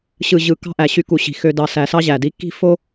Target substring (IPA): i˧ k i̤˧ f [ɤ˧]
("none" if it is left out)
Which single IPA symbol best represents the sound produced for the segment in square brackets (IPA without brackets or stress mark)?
o˧